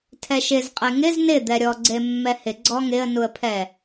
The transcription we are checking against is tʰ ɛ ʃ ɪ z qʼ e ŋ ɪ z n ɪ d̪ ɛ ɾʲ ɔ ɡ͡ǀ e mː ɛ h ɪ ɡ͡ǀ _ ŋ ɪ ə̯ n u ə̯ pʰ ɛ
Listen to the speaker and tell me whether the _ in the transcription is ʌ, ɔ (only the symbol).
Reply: ɔ